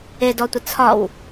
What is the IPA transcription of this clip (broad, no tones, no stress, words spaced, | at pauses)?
edɔtʷə t͡sʰɒw